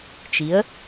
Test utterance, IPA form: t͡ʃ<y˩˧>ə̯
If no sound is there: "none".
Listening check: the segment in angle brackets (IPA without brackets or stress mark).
i˩˧